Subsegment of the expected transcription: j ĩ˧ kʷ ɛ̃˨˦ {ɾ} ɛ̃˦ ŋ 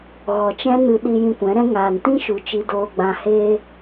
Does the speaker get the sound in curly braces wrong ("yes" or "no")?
no